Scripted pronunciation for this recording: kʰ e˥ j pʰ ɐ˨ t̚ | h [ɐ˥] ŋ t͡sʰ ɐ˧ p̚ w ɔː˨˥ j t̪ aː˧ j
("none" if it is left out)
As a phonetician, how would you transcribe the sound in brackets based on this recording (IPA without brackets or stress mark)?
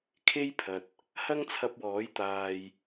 ɐ˥